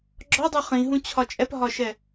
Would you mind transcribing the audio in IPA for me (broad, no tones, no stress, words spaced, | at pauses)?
ɡ͡ǁɒdˤo χĩɦũ t͡ɕʰɒt͡ʃʼɛpɦɒʃɛ